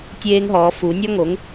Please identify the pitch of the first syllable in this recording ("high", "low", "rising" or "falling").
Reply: high